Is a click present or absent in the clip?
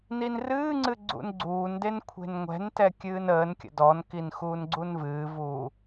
present